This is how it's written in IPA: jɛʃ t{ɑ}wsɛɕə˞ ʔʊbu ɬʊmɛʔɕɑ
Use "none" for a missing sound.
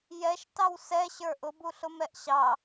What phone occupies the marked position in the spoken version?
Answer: ɑ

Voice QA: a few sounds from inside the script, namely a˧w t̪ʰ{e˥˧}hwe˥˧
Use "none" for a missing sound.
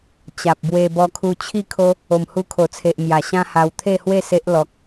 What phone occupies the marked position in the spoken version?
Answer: e˥˧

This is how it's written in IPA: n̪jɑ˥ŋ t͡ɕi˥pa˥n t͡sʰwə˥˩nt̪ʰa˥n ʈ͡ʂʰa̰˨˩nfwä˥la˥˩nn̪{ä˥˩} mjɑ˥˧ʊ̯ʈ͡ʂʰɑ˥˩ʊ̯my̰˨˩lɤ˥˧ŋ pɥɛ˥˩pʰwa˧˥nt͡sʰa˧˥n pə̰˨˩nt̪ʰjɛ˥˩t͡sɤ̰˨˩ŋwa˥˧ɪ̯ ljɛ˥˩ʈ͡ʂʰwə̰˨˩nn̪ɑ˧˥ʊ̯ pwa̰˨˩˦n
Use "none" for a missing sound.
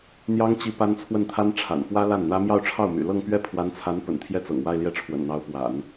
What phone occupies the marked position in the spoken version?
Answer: ä˥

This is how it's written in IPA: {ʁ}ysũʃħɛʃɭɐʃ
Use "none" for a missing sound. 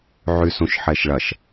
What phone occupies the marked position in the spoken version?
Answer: ʕ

